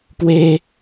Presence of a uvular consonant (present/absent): absent